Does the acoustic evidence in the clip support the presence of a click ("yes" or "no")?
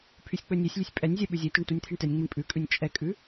no